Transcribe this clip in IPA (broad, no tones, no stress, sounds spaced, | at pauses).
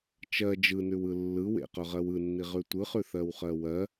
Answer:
t͡ʃ ɜ d͡ʒ ɯ n ʉ w ɯ lː ɯ w ḛ q ɵ ʁ ɜ w ɯ nː i ʁ ʉ tʷ ɯ χ ʉ θ ɜ w χ ɜ w ɜ